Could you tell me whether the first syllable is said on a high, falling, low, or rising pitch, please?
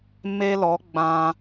high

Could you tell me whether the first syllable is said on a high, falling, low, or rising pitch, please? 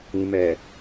low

